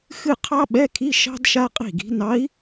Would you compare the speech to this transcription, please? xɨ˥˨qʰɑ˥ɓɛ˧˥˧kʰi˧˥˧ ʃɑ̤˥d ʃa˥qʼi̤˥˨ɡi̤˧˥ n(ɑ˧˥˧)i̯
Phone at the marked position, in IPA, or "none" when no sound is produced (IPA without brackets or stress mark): ɑ˧˥